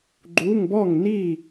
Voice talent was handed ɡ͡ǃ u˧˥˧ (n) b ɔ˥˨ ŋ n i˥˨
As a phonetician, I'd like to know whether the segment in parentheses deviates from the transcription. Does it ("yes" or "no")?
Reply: yes